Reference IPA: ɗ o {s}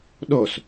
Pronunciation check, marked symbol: correct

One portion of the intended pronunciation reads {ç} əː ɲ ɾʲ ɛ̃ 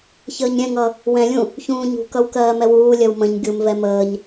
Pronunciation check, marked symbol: correct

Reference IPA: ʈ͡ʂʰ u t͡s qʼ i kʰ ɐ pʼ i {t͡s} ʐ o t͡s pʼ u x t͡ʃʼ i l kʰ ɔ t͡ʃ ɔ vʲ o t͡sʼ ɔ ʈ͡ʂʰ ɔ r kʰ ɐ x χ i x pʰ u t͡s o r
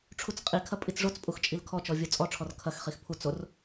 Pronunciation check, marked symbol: correct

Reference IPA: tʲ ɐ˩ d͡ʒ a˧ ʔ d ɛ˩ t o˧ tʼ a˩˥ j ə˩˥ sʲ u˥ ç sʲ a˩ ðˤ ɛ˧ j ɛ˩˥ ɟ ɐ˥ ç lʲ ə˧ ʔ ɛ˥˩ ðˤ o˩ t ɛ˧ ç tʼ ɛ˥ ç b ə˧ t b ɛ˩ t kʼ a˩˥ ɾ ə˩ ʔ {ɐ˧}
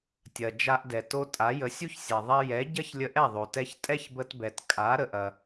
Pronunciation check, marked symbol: incorrect: ɐ˩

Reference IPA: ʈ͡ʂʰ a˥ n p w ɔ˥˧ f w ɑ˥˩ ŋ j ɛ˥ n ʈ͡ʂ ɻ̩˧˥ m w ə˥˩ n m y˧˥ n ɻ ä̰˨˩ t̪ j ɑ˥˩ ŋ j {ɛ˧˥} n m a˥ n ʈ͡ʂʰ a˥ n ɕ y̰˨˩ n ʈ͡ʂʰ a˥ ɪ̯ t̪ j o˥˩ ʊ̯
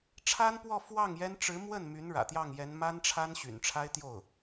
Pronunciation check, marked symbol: correct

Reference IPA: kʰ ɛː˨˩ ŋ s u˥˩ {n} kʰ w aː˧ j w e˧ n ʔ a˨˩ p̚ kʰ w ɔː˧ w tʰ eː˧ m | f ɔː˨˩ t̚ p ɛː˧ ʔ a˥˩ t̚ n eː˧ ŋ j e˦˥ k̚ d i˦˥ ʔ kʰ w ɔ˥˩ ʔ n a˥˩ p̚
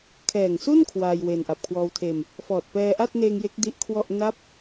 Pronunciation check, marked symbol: correct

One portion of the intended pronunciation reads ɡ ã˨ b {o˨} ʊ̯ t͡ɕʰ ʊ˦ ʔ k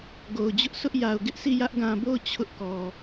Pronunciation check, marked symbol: incorrect: o˦˨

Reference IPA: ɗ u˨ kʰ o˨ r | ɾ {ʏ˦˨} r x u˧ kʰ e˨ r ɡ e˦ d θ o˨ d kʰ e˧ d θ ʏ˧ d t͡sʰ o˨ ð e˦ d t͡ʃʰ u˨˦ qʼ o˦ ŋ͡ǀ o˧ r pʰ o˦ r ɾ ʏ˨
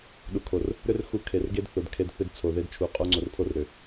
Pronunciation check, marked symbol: incorrect: ʏ˦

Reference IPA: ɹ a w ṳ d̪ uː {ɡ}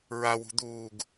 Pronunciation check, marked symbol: correct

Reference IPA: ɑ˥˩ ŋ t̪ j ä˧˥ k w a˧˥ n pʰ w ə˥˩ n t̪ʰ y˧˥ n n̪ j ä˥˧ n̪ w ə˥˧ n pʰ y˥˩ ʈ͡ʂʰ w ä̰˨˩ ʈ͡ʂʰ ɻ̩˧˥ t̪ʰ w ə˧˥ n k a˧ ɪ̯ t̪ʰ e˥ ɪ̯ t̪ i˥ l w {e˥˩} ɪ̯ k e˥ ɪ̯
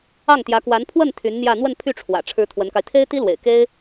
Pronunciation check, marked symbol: incorrect: ḛ˨˩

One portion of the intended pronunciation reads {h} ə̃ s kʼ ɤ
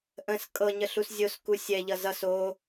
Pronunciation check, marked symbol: incorrect: ʔ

